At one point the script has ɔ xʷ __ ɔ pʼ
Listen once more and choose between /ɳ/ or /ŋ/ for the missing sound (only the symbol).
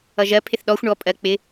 ɳ